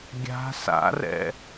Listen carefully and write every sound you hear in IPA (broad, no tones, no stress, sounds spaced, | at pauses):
ɡʲ a̤ s a̰ r ɛ̰